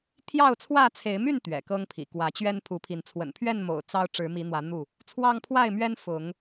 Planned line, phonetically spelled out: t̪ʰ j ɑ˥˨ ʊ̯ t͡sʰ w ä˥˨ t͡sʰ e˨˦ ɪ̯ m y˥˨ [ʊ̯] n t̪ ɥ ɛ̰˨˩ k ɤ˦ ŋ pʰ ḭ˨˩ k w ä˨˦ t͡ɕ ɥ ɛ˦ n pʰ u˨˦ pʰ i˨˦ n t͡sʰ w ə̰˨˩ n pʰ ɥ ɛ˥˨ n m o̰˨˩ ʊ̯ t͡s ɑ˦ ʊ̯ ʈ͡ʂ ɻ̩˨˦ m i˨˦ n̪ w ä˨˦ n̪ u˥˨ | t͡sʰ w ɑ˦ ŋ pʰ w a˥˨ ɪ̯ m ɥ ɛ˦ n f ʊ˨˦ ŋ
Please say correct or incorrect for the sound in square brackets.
incorrect: none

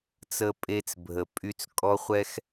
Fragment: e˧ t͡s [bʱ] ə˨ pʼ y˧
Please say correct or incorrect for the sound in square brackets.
correct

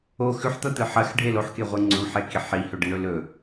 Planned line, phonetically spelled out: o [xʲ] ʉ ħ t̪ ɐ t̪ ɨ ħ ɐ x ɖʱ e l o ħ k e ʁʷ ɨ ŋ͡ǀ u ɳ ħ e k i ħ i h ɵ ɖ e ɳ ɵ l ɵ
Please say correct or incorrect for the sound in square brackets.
incorrect: x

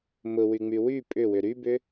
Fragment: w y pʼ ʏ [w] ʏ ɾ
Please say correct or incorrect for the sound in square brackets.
correct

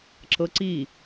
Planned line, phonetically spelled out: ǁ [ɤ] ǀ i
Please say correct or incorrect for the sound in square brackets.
correct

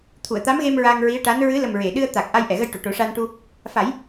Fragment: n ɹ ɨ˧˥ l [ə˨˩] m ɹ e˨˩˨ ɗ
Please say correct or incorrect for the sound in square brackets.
correct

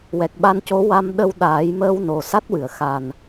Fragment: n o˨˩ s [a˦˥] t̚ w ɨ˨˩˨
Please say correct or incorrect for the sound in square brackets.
correct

